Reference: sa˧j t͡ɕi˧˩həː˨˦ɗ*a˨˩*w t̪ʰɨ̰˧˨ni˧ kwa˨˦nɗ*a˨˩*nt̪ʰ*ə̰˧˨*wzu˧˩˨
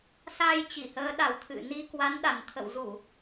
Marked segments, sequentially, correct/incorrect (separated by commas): correct, correct, correct